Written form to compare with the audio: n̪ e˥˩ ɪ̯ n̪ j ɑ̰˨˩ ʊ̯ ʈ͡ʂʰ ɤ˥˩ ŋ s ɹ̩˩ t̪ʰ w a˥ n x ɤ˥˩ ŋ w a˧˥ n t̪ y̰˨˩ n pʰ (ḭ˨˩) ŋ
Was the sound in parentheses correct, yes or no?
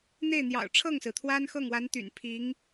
no